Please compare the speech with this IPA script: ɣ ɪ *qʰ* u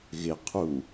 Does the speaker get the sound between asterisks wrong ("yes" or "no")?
no